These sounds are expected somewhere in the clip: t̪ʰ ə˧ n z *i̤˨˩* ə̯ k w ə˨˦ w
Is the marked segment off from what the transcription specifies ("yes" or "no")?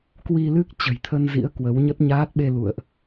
yes